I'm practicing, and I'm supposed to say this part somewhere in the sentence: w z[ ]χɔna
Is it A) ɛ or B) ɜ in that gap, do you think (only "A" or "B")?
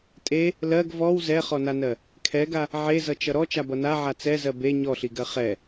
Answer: A